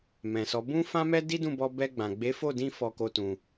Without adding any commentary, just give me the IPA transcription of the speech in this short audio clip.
m ɛ̃˨ s ɔ˨˦ b ũ˦ f ã˦ m ɛ˦ d i˦ d ũ˦˨ b ɔ˧ b ɛ˧ ɡ͡b ã˨ ɡ͡b e˨˦ f o˦˨ d ĩ˧ f ɔ˧ k o˧ t ũ˨

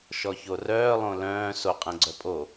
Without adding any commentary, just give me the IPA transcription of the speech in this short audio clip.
ʃ ɔ ç o r œː lˠ õ l œ̃ː s o qʼ ɛ̃ ɡ͡ǀ œ pʼ o

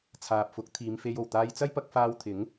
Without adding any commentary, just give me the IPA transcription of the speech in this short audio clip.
t͡sʰ aː˨ p̚ f ʊ˨˥ k̚ t̪ʰ iː˨˧ m f e˧ j o˨˩ w t̪ aː˧ j t͡s ɐ˥ j p ɐ˧ k̚ f aː˧ w t̪ʰ ɪ˨˥ ŋ

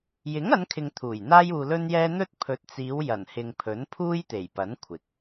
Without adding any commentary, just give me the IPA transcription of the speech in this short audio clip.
j ɪ˨˥ ŋ ɐ˨˧ n kʰ ɪ˨ ŋ t̪ʰ uː˨˩ j n̪ aː˧ j uː˨ l ɵ˧ n j ɛː˧ n̪ ɵ˥ t̚ pʰ ɵ˨ t̚ t͡s iː˨˧ w j ɐ˨˩ n h ɪ˨ ŋ pʰ ɵ˨˥ n pʰ uː˥ j t̪ e˨˩ j p ɐ˨˥ n kʷʰ ɪ˨ k̚

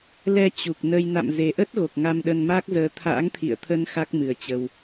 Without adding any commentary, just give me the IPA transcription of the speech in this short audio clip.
l ɛ˧ t͡ɕ u˨˩ k̚ n ə˧ j n a̰˧˨ m z e˨˩ ʔ ə˦˥ t̚ ɣ o˨˩ k̚ ŋ a˧ m ɗ ə˧ n m aː˦˥ k̚ z əː˨˦ t̪ʰ a̰ː˧˥ ŋ t̪ʰ ḭ˧˨ ə̯ t̪ʰ ə˧ n x a˦˥ k̚ m ɨ˨˩ ə̯ t͡ɕ ə˧ w

